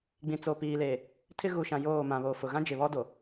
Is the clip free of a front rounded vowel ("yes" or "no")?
yes